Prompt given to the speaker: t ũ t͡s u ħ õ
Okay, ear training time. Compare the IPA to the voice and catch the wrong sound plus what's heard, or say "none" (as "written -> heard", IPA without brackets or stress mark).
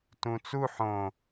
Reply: none